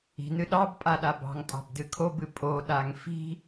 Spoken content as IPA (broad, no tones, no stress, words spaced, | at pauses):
i̤nɨ ɗɑbpʼaɗa bɑ̤ŋtʼɑ̤bdɨ kʰobɨ pʼoɗaŋ fi̤